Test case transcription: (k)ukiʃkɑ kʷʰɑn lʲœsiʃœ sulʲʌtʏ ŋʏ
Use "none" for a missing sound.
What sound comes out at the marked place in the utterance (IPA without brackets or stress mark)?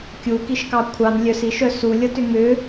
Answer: kʲ